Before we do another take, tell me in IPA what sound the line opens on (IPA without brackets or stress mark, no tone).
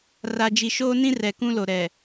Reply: r